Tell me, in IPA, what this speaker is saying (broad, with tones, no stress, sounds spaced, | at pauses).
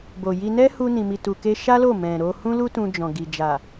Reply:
b o˨ j i˧ n ɛ˦ h u˧ n ĩ˨ m i˨ t u˨ k e˧ ʃ a˦ l o˦˨ m ɛ̃˨ ɾ o˧ h ũ˦ l u˦ t ũ˧ d͡ʒ ɔ̃˨ ɡ i˨ d͡ʒ a˨